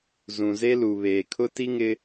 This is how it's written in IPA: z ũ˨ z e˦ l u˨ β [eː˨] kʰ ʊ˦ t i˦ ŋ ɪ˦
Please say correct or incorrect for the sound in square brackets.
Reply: correct